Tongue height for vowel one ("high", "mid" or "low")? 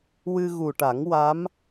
high